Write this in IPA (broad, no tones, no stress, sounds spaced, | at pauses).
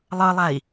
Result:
lˠ ɤ lˠ a i̯